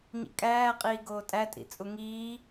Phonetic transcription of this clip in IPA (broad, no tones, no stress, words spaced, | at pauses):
ɲḭkʼæː qʼiːɡoːtʼæ tʼḭt͡sʼuŋiː